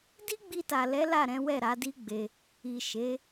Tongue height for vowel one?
high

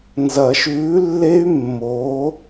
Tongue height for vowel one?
low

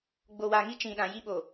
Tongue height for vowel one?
mid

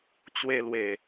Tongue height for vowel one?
mid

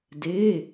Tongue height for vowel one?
mid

